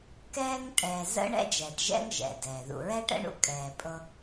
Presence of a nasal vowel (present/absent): absent